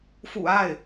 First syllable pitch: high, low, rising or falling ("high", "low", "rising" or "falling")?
low